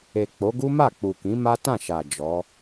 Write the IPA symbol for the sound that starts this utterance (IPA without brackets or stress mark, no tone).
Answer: e